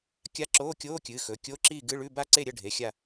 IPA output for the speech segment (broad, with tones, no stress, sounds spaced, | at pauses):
kʲ a˧˥˧ ǁ oː˧˥˧ kʲ oː˧˥˧ kʲ ɨː˩˧˩ x ɵ˩˧˩ kʲ o˧˥˧ ǁ iː˥˨ ɡ ɨ˧˥˧ ɭ ʉ˧˥˧ b a˥˨ ǀ e˥˨ ɾʲ ɐ˥˨ ɖʱ e˩˧˩ xʲ a˥˨